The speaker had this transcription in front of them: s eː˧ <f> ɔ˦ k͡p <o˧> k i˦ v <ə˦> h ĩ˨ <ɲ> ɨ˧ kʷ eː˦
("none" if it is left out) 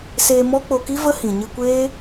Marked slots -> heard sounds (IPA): m, o˧, ə˦, ɲ

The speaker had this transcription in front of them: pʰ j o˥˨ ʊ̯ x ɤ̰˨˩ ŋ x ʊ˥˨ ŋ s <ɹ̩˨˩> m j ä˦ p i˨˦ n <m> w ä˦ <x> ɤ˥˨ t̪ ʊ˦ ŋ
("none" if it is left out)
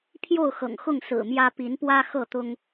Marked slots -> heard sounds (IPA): ɹ̩˨˩, p, x

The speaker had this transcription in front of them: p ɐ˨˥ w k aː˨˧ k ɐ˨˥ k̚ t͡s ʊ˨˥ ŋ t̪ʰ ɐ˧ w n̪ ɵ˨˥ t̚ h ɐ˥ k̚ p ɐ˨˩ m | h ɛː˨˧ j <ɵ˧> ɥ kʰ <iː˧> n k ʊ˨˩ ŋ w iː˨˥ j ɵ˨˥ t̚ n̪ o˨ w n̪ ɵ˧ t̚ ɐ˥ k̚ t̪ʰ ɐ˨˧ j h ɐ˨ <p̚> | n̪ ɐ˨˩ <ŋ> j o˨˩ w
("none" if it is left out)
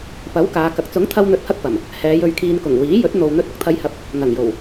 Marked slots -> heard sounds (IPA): ɵ˧, iː˧, p̚, ŋ

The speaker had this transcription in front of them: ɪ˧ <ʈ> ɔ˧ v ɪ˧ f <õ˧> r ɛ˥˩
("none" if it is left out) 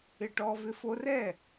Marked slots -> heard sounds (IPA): ʈ, o˧

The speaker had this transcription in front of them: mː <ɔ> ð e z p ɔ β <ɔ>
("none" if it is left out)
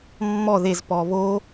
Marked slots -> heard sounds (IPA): ɔ, o

